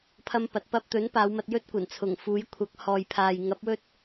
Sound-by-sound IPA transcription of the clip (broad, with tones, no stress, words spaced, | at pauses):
pʰɐ˥mpɐ˨˥t̚ pɐ˧p̚t̪ɵ˨˥n paː˨˧wmɐ˧t̚jɵ˥t̚ kʷɐ˨˩nt͡sʰʊ˨˩ŋfuː˨˥j kʷʰɐ˨˥k̚ hɔː˨jpʰaː˨jŋɐ˨˥p̚wɵ˥t̚